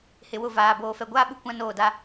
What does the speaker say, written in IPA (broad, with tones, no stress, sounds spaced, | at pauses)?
h ɪ˨ w ʊ˦˨ v aː˨ b oː˨ f ɛ˨ ɡʷ aː˦ ɓ u˦ kʷ ã˦ n oː˦˨ d a˦